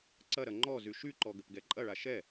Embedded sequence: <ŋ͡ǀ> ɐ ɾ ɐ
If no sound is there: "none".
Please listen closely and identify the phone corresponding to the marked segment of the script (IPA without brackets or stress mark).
ǀ